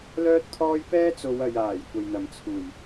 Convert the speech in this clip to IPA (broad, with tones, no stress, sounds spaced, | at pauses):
l œː˥ t̚ t̪ʰ ɔː˥ j p ɛː˥ t͡s o˨˧ w ɐ˨ j aː˨˩ j kʷ ɐ˨ j n̪ ɐ˨˩ m t͡sʰ uː˨˩ j